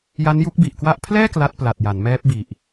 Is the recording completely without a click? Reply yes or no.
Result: yes